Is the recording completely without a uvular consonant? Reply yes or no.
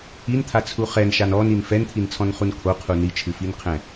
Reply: no